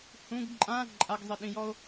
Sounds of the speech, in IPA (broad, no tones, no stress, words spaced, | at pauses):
hũɡ ǃʼã ǃʼaɡzˤiɗĩjɔo̯